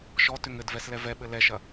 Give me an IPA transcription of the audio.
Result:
ʃ ɔ t ʏ ŋ ɘ d v ɛ s l ɛ v ɛ ɓ ɘ l ɛ ʃ ɐ

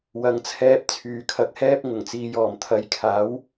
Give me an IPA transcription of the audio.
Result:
w ɐ˨˧ ŋ t͡sʰ ɛː˧ p̚ t͡sʰ yː˨ kʰ ɐ˧ k̚ h ɛː˥ p̚ ŋ ʊ˨˩ ŋ t͡s iː˨ j ɔː˨˩ m t̪ʰ ɐ˨˧ j kʰ aː˨˥ w

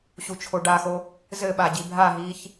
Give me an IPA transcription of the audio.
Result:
ɕ u t͡ʃʰ o ɖ a x o | z ɘ ɓ a ɟ i bʱ a ɦ iː ç

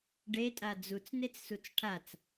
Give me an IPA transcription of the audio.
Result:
ɖ e tʼ a d͡z u t͡s n e t͡s s u t͡s ʈʰ a t͡s

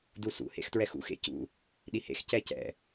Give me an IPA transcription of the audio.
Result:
d u s ṵ h ḛ x t ɹ ɛ x ṵ x ḛ c ṵ | ɗ i h ḛ x c ɛ c ɛ̰

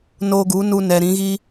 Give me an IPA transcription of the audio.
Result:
n oː˧ ɡ u˨˦ n u˧ n ɛ˨ ɾ ĩ˨˦ ɣ i˦

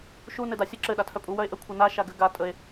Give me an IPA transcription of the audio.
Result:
ʃ u n ɘ d a sʲ ə ǁ ɘ ɗ a tʰ œ pʼ u w œ e̯ ʔ ə kʷʰ ʌ n a ʃ a ɡ ɘ ɡ a tʼ ə e̯

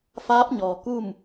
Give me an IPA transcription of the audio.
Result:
f aː˧˥ p̚ ɲ ɔː˩ k u˥˨ m

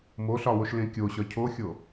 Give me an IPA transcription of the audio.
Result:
m o ɬ ɒ w o ʃ l ẽ kʲ o ɕ ɒ cʰ o xʲ o

